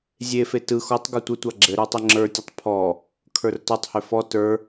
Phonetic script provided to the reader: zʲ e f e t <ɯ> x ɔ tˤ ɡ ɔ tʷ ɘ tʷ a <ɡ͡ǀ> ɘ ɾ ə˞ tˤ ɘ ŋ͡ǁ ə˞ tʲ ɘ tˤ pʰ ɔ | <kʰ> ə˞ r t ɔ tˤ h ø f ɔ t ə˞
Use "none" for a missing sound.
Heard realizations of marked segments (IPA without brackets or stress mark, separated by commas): ɯ, ɡ͡ǁ, kʰ